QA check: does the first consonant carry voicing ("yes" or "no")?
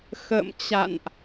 no